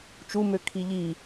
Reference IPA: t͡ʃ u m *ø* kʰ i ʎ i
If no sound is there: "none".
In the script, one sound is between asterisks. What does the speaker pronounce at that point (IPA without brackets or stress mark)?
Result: ø